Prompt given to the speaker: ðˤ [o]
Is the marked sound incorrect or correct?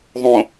incorrect